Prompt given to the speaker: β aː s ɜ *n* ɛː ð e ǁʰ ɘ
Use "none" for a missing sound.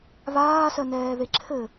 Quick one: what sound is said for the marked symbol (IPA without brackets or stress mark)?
n